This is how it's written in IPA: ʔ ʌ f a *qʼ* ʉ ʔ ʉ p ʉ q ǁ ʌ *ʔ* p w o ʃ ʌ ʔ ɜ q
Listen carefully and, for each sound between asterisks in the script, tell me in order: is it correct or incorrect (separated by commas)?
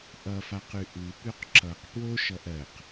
incorrect, incorrect